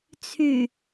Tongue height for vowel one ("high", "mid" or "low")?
high